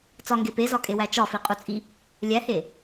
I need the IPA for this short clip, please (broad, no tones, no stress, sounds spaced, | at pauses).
t͡s ɒ ŋ ɡ e p e z ɒ kʼ e w æ t͡ʃ ɒ f i qʼ u t͡sʼ i | lʲ æ h e